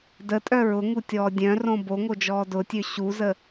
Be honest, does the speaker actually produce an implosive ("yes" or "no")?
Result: no